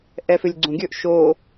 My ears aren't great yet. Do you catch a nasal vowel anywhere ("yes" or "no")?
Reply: yes